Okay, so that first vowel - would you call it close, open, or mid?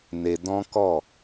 mid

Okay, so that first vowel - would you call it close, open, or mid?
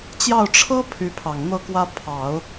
open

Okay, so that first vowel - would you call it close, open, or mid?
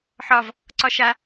open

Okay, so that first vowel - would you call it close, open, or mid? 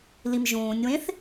close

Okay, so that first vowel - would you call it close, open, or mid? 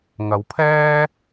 open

